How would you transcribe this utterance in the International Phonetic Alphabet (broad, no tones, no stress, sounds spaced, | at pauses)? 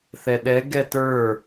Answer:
θ ɛ ɗ ɛ ɡ ɛ t ə˞